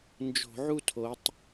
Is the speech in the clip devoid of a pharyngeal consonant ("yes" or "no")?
no